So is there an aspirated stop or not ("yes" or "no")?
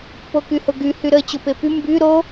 no